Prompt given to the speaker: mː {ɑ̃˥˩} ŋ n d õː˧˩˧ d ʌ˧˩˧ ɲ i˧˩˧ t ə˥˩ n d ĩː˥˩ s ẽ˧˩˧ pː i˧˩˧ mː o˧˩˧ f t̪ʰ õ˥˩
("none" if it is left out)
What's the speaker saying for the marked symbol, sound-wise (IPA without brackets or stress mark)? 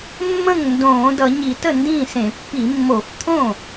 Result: ə̃˥˩